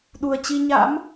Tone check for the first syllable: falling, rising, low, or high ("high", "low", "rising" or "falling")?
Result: low